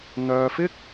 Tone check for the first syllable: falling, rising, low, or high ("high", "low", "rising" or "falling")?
low